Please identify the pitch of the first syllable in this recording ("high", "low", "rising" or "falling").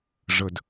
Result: low